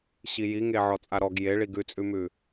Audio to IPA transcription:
ɕijiŋe ʕɔt͡sʼaɾɔɡ jeɭi ɡʉt͡sʼʉmʉ

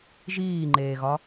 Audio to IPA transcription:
ʒiːŋ͡ǃeːɣɒ

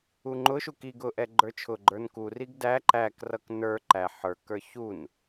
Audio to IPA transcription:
uŋ͡ǃʊʃuk iɡ ʊʔɛ ɡ͡ǃə˞t͡ʃʰʊɡ͡ǃə˞n kuriɡ dæ ǃækrʌk nə˞ ǃæ ħə˞kə˞ çun

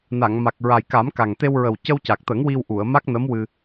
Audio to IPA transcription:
na˨˩˨ŋma˨˩k̚ɹa˨˩j ka˨˩˦mka˨˩ŋt̪e˧w ɹə˨˩wcə˧wca˨˩k̚t̪ə˨˩˦ŋ wi˧wʔu˨˩˨ə̯ma˦˥k̚nə˧˥m wɨ˧

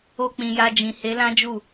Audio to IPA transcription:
o˧k͡pĩ˨ ja˧d͡ʒĩ˨ he˨˦lã˦d͡ʒu˦˨

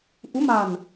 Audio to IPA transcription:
ʔu˨˦ma̤˨˩n

